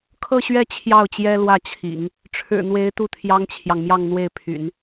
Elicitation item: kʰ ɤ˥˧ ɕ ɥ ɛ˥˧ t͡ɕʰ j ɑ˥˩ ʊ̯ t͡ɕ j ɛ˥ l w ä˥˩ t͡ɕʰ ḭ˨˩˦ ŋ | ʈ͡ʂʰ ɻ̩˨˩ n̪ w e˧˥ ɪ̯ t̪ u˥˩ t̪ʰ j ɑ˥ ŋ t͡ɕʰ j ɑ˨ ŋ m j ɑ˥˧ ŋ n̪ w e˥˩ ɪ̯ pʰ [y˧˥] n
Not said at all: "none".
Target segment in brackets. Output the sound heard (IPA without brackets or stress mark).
y̰˨˩˦